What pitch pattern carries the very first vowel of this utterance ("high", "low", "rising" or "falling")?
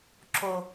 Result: high